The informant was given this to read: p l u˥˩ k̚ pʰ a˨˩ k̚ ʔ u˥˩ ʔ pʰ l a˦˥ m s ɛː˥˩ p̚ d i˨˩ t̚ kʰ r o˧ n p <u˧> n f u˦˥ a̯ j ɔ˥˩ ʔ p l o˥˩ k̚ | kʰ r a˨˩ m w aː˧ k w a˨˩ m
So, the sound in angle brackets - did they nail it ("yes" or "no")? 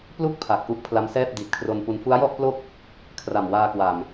yes